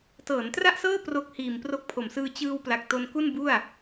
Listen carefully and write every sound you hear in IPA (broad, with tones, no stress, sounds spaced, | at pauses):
t ɤː˩˦ n t r a˥˩ ʔ s ɤː˥˩ p r o˦˥ k̚ h iː˨˩ m p r o˦˥ k̚ pʰ o˨˩ m s ɯː˧ t͡ɕ ɯː˧ w p l a˨˩ k̚ t o˧ n k u˥˩ n b u˥˩ a̯